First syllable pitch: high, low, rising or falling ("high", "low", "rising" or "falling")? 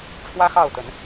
high